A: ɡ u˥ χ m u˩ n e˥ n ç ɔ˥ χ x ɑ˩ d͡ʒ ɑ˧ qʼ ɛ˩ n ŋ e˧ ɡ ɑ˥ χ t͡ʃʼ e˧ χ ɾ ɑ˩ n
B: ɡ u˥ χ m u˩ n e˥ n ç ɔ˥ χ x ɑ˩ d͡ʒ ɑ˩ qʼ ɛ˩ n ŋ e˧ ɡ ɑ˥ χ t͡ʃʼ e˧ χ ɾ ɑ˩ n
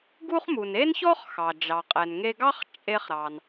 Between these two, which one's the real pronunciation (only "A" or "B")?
B